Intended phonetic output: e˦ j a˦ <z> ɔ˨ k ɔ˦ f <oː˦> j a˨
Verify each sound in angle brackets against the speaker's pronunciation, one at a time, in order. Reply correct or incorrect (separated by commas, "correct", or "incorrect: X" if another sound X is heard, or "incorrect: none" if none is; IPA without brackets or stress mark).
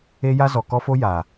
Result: correct, incorrect: o˦